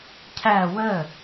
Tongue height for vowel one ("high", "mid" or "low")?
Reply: low